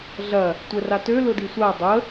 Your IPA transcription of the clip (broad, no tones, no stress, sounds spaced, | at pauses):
ɮ ɐ | tʷ ɛ r a t ø l ʊ d i sʷ a dˤ ə